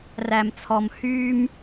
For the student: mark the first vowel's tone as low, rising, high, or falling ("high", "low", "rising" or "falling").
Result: low